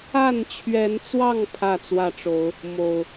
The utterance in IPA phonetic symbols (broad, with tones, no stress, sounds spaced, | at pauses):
a˥˨ n t͡ɕʰ ɥ ɛ˨˦ n t͡s w ɑ˥˨ ŋ pʰ ä˥˨ t͡s w ä˥˨ ʈ͡ʂ o˨˦ ʊ̯ | m o˨˩ ʊ̯